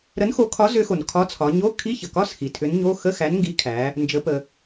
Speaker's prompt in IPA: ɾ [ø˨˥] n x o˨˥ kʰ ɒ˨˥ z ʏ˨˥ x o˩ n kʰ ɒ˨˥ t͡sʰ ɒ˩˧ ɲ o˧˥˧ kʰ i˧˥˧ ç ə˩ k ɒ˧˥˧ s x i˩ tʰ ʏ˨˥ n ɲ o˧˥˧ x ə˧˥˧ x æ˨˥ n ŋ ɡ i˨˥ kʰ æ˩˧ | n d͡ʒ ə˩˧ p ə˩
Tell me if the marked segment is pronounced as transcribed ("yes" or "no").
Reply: no